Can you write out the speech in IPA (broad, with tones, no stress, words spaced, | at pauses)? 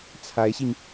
t͡sʰa˧˥ɪ̯ɕi˧ŋ